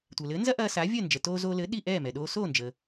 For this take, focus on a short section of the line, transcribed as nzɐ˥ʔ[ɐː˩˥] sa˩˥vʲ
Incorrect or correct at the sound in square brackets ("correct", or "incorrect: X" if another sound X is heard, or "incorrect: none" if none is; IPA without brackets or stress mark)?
incorrect: ɐː˧